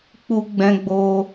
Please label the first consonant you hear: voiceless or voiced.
voiceless